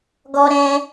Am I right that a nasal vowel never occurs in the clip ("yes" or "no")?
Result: no